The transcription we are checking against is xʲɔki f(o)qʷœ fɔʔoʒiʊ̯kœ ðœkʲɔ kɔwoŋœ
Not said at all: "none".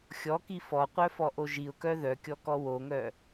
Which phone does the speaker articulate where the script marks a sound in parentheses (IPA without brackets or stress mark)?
ɔ